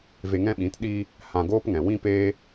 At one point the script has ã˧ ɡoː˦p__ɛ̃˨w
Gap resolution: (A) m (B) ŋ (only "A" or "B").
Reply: B